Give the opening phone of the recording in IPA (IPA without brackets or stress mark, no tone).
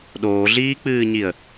ɗ